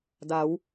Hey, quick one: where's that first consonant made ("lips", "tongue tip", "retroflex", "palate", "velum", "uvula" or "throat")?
tongue tip